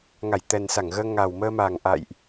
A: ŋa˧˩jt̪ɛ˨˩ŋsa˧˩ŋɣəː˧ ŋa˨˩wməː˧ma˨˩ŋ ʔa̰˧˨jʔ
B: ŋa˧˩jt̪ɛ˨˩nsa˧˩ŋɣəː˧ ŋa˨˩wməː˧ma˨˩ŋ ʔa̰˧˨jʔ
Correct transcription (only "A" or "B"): B